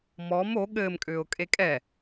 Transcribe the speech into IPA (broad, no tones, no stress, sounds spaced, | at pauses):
m ɔ m o ɠ ɘ m kʼ ʏː ʊ̯ kʼ e kʼ ɛ